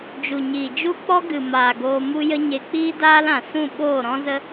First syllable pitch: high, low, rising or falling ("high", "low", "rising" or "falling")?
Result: low